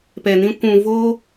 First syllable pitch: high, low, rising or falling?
low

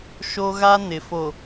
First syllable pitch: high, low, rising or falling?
high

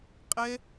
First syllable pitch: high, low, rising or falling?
high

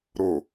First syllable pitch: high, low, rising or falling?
low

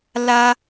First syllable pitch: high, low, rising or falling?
low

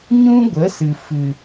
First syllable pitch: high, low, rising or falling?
high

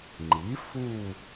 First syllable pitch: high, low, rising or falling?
rising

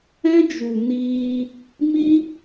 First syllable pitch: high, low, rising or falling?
high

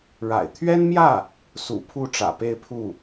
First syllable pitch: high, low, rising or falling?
low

